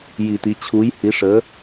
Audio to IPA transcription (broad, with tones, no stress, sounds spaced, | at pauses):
j i˨˩˦ t i˩˧˩ t͡ɕʰ u˨˥ j h i˨˥ ʂ ə˨˥